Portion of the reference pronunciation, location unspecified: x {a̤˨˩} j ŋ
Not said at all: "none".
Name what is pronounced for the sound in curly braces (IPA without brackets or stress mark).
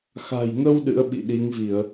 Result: a̤˨˩